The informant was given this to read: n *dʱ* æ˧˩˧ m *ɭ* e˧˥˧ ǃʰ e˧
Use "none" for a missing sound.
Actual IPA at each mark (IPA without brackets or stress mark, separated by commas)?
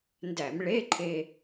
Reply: d, ɭ